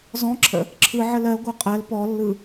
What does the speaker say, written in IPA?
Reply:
z ɔ̃ ǁʰ ə̰ | ǁʰ ɯ ʕ ə l ɜ ɡʷ ɜ qʼ ɜ l p ɔ lː ɯ

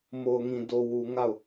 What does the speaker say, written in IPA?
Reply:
m o˨ ʊ̯ ŋ ĩ˨ d o˨ w u˨ ŋ a˦˨ ʊ̯

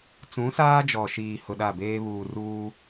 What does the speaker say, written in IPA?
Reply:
t͡s ũ˨˦ s aː˦ d͡ʒ ɔ˨ ʃ iː˨ h ʊ˨ ɗ a˦˨ b eː˦ β uː˨ r uː˦

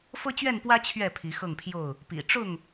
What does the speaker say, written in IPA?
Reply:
f ɤ˦ t͡ɕ ɥ ɛ˥˨ n p w ä˦ t͡ɕʰ ɥ ɛ˥˨ pʰ i˨˦ x ɤ˥˨ ŋ pʰ j o˥˨ ʊ̯ | p ḭ˨˩ ʈ͡ʂ ʊ˥˨ ŋ

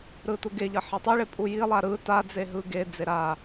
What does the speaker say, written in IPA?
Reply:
ɾ ɯ t u ɡ e ʎ ʌ ħ e tˤ i ɭ e pʼ u j i lˠ a ɾ ɯ t a d͡z e ɦ ɯ ɡ e d͡z e ɾ a

